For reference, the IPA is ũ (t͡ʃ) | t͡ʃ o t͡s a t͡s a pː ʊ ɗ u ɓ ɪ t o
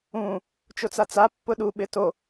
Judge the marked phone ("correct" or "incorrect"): incorrect